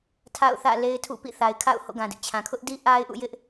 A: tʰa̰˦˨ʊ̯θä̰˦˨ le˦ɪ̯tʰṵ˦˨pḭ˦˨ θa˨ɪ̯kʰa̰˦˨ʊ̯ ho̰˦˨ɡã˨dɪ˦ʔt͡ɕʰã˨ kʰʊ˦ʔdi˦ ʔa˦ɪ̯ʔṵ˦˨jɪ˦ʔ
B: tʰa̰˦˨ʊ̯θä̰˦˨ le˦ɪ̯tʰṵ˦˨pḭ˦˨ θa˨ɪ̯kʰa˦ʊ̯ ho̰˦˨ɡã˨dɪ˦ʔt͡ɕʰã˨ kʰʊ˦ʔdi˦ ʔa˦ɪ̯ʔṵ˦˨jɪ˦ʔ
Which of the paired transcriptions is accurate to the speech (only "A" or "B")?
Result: A